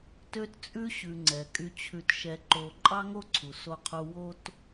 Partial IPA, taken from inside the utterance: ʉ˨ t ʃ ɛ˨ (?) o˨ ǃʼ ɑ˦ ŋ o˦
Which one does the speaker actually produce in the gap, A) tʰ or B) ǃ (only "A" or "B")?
B